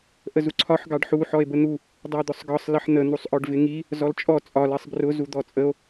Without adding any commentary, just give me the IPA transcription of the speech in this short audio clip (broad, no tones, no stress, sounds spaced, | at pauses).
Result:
ʔ ə z u ǀʰ ɒ ħ ɡ ɑ ɖ ħ u ħ ɔ e̯ b ə n̪ u | dˤ ɜ d̪ ʊ sˤ ɡ ɒ sˤ l ə ħ n̪ ə n̪ u sˤ ʔ ɔ ɖ v ɪ ŋ i | z ɔ l t͡ʃʼ ɔ t͡sʼ ɒ l ɜ sˤ b r ʊ z u d̪ ɔ t͡sʼ ə o̯